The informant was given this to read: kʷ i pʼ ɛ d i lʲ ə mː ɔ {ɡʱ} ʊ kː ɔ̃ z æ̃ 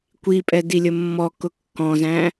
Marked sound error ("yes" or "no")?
yes